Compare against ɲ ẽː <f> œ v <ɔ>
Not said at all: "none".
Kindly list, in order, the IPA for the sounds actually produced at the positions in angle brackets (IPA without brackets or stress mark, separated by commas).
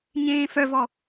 f, ɔ